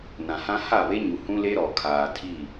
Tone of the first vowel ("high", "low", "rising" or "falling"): low